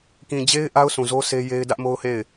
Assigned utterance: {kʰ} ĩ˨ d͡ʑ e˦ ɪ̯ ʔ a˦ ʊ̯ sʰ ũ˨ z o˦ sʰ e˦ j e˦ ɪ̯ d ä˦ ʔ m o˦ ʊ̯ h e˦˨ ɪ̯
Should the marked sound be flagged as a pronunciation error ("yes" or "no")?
yes